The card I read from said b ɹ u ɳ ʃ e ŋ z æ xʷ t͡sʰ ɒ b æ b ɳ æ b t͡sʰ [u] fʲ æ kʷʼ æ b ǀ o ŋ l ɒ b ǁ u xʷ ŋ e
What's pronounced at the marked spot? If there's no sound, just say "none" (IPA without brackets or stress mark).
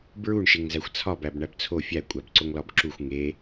o